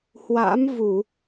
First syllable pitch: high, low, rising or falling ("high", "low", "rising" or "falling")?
rising